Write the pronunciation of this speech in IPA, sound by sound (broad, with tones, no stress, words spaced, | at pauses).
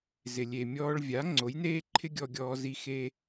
zɪ˩lʲe˩mʲɔː˧ɭ vʲa˩˥ ŋ͡ǀo˩˥jneː˥ǃʰɪ˥ ɡʲɔ˧ɡʲɔː˧zi˧ xeː˧